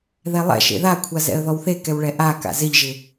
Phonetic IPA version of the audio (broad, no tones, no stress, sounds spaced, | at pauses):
ð ɛ lˠ ɛ̰ ʃ ḛ ð a kʷʰ a z ɛ̰ ə̯ ð ɔ w θ e k ɛ w ɭ ɛ ʔ a k a̰ z ɪ ʎ ʒ ɪ